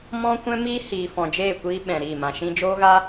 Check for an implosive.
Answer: present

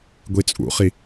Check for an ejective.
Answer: present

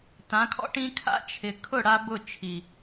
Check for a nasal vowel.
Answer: present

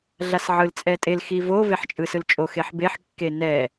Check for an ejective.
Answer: present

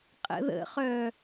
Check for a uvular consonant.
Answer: present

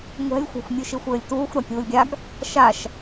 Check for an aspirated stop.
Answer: absent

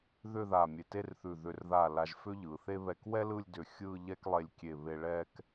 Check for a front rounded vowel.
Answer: present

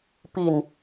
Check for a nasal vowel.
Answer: absent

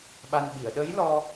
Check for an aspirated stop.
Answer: absent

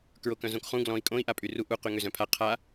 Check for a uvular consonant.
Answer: present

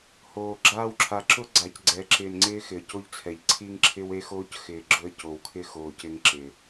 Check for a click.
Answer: present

